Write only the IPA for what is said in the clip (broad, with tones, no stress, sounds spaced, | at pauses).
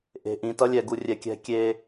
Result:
ʔ e̤˨ ʔ ĩ˨ t ʌ˦ lʲ ɛ˨ ɡ u˨ rʲ ɛ˨ kʲ ɛ̤˦ kʲ e˦